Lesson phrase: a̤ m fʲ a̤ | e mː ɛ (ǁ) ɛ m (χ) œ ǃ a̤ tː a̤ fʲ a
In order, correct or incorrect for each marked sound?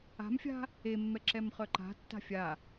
correct, correct

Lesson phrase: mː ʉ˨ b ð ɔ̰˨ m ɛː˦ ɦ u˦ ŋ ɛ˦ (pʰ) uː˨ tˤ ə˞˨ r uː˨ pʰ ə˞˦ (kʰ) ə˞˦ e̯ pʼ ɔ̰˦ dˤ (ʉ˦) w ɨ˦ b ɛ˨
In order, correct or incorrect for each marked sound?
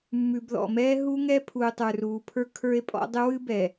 correct, correct, incorrect

